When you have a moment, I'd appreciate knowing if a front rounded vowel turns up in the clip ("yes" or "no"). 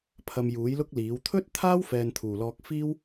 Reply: no